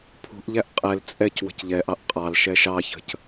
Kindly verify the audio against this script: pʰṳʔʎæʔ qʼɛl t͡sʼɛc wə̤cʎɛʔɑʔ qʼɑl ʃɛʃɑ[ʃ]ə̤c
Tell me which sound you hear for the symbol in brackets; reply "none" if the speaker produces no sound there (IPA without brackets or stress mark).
ç